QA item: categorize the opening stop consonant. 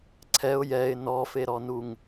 click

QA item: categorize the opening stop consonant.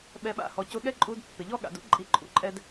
implosive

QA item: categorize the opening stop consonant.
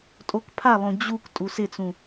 ejective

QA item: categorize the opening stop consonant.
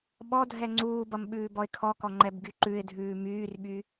implosive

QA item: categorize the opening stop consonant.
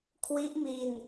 aspirated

